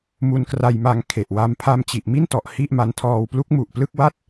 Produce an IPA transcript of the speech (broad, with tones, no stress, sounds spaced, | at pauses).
m u˧ n k r a˧ j m a˧ ŋ kʰ e˨˩ ʔ w a˧ m pʰ a˧ m t͡ɕ i˨˩ ʔ m i˥˩ n t ɔ˨˩ ʔ h i˥˩ ʔ m a˧ n tʰ ɔː˧ w p l u˦˥ k̚ m u˨˩ ʔ p l ɯ˥˩ k̚ w a˥˩ t̚